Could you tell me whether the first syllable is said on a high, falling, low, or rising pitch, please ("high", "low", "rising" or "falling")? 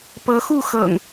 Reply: rising